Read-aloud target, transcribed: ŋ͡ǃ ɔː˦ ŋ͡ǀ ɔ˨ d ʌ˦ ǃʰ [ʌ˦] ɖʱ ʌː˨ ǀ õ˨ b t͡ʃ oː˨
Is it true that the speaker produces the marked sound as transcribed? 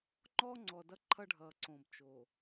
yes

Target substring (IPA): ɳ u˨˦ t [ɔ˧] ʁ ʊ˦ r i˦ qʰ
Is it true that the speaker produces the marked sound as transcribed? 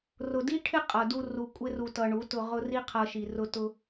no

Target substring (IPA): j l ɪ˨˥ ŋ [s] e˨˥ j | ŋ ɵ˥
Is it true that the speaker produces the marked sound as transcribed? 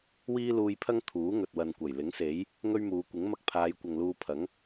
yes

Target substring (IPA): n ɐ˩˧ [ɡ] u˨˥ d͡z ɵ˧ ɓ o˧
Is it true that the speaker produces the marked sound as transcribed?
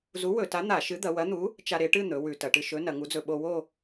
no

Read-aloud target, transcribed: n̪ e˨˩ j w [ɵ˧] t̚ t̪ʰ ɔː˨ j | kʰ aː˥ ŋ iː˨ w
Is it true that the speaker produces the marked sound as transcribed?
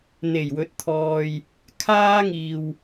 no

